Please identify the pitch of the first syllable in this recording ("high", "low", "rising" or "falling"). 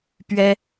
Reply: high